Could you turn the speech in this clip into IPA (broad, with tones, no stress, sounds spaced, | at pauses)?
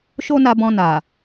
ʃ o˦ n a˧ b ɔ̃˧ n a˨